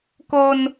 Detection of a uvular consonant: absent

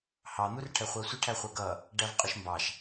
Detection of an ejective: present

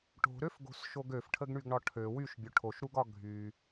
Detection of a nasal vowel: absent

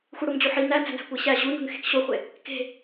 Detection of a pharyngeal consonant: present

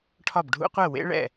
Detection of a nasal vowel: absent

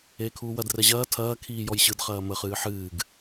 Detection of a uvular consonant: present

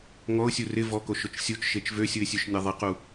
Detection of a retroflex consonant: absent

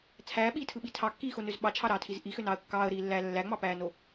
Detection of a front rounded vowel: present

